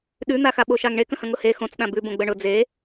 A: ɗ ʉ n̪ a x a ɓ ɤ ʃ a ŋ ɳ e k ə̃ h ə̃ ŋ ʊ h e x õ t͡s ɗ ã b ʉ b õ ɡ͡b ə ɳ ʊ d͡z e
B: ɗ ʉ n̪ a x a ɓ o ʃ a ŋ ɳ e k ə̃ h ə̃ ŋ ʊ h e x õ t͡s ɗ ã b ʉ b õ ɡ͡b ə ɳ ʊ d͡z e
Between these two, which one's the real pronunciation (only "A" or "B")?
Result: B